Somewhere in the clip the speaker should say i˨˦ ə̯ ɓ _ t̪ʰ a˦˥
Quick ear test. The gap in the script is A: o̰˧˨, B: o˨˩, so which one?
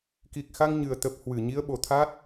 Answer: B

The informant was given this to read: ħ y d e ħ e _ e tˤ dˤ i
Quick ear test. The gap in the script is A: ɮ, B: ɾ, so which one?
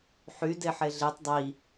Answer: A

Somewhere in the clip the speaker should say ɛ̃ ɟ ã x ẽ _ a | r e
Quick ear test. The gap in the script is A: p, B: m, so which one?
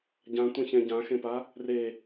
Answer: A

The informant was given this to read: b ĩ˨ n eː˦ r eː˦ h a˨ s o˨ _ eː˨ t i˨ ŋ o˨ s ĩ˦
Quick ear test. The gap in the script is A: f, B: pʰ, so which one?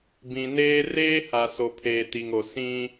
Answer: B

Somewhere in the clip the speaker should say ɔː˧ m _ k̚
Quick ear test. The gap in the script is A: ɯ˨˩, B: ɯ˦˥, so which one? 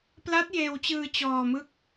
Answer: B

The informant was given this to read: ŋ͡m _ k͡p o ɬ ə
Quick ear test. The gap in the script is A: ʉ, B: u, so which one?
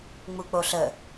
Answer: B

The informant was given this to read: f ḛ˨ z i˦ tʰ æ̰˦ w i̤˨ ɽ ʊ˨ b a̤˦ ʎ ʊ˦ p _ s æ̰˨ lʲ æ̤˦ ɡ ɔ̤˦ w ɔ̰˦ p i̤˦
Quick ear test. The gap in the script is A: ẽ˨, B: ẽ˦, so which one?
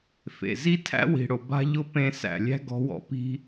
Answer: B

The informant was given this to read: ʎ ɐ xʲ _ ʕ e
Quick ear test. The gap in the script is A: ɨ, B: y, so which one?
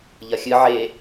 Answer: A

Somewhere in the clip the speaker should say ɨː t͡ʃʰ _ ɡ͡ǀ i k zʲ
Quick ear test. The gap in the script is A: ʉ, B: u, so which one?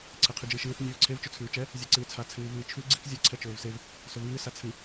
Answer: A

